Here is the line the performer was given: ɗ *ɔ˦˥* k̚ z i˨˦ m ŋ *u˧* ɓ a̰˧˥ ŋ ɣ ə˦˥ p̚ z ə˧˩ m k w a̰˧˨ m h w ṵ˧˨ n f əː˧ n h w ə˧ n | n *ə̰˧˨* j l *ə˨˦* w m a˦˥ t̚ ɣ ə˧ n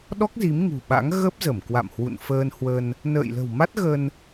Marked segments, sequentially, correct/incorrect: correct, incorrect: ṳ˨˩, incorrect: ə̰ː˧˨, incorrect: ə̤˨˩

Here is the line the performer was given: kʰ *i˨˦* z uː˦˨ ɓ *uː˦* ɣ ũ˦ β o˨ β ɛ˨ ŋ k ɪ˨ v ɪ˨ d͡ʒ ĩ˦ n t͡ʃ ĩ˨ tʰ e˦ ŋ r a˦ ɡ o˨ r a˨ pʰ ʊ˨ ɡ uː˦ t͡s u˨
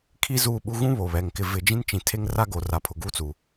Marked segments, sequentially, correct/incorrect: incorrect: i˦, incorrect: u˦

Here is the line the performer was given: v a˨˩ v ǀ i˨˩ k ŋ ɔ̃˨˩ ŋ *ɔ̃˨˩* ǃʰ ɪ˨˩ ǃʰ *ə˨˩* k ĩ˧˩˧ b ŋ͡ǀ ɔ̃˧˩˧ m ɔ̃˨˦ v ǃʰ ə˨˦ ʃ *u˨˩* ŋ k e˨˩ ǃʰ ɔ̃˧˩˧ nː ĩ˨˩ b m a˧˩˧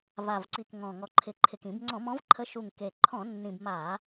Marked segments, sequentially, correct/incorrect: incorrect: ɔ˨˩, incorrect: ɪ˨˩, correct

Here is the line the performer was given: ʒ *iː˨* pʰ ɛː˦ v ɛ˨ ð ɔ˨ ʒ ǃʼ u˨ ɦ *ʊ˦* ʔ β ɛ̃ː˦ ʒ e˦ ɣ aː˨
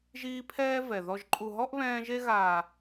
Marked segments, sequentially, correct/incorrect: incorrect: iː˦, incorrect: ɔ˦

